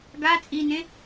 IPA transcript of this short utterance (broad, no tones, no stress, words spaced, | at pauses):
ɡa t͡sʼinẽ